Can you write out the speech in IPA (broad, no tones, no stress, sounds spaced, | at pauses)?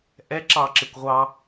ʔ ɛ ǁ ɑ ǁ ɪ kʷ ʁʷ ɑ